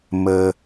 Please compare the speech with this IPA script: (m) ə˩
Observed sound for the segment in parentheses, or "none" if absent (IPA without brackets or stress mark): m